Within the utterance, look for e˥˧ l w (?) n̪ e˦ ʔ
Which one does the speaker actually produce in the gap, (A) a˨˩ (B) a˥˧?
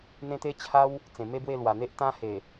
A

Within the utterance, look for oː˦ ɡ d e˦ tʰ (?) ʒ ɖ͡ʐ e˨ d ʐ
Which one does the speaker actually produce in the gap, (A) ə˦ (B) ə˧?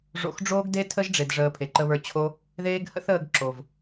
A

